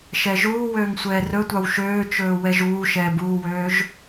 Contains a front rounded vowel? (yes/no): yes